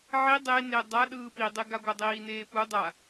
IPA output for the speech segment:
ʕi dˤene dˤa ɗɯːpidˤeɡa ɡʷadˤiːneːpu dˤa

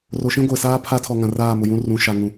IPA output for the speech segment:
ro˨ʃĩ˦ɡʷe˨ saː˦pʰa˦tʰɔ˨ ŋã˨raː˦˨mʊ˨jũ˦ rũ˨ʃa˨ ŋũ˨

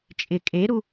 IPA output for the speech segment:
t͡ʃʼɪ kʼeɾu

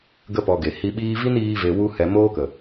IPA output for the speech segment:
ɡə˦pɔ˧ɡe˨ hi˧ɓiː˦ vi˦niː˧ve˨ wu˧hɛ˨ moː˦kə˨

